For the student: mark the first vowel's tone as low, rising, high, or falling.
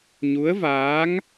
rising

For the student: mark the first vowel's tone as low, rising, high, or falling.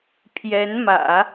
rising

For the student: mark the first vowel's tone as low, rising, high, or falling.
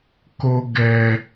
low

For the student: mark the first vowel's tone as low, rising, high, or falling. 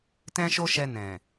high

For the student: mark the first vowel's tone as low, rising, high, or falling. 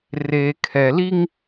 low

